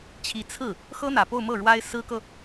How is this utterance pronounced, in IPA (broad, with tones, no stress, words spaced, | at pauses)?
t͡ɕʰi˧˥ t͡sʰɹ̩˥˩ | xɤ˥n̪ä˨˩po˥˧ʊ̯mɤ˥˩ ɻwa˥ɪ̯sɹ̩˥kɤ˨